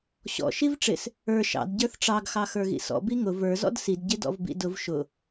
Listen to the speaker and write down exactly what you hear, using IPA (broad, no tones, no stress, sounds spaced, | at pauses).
ɕ ɔ̰ ʃ i v ʈ͡ʂ ɪ s | ə˞ ʃ ɑ̰ d ɟ ə˞ θ ʈ͡ʂ ɑ ɡ x ɑ x ə˞ ɣ ḭ s ɔ̰ b i ŋ ʊ v ə˞ z ɔ̰ d s i d ɟ ɪ d ɔ̰ v b ḭ d ʊ v ʃ ʊ